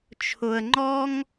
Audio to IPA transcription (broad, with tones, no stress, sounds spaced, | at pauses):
t͡ʃʰ ʊ˧ ə̯ ŋ͡ǃ ɔ˥ ŋ